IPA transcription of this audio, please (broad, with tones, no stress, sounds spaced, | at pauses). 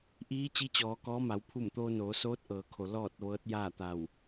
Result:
ʔ iː˧˥ t͡ɕ i˧˥ t͡ɕ ɔː˩˧ k ɔː˧˥ m a˩˧ w pʰ u˧˩ m t̪ oː˧ n oː˩˧ s oː˧˥ t̚ ʔ ɤː˩˧ kʰ o˩ l ɔː˧˩ t̚ ʋ ɤː˧˥ t̚ j aː˥˨ t̪ a˧˩ w